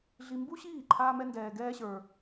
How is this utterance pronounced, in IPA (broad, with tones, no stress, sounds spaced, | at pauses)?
ɮ i˧ m b u˥ ɕ iː˥˩ ǃʰ aː˥ m ɛ˥ n d ɛː˧ ɡ ɛː˥ ɕ ə˞˧